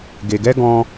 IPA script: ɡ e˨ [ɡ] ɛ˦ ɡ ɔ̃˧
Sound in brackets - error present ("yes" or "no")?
no